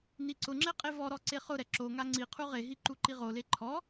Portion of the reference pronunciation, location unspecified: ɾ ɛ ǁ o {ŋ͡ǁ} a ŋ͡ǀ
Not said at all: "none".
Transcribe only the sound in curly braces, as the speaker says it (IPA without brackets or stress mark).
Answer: ŋ